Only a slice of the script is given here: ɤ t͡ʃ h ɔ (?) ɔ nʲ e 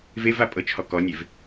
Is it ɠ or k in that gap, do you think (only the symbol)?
k